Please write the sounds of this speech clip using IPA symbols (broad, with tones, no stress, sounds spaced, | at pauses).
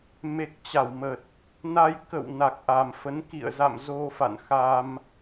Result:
m e˨˩ k̚ t͡ɕ a˧˩ w m ə˨˩ t̚ | n a˧ j k ə̰˧˨ w n a˨˩ k̚ ʔ a˨˩ m f ə˨˦ n k ḭ˧˨ ə̯ z a̰˧˨ m z o˧ f a̰˧˨ n x a˧ m